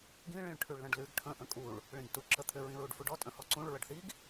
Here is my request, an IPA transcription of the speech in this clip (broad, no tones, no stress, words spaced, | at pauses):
ɡĩ ɭĩɭʈʰʉɭlə̃ɖlʉɡ ʈʰə̃ ʔə̃kʼuɭ | ɭĩɡtu ǁət̪ʰʏ ɹĩɹuɖfuɖɔ tʼə̃hɔǀũɭ ɹəɖθiɡ